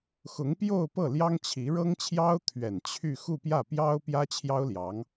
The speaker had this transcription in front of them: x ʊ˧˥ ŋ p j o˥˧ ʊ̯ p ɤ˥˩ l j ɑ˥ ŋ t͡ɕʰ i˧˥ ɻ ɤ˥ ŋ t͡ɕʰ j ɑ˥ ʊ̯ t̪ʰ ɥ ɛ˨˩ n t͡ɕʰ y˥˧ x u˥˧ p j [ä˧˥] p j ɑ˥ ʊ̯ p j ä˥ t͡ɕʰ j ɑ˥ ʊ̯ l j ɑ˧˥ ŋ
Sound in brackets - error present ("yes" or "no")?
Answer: yes